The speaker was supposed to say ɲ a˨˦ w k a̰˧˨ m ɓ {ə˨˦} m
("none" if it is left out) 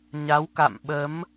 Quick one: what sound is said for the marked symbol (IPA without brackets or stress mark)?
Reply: ə˨˦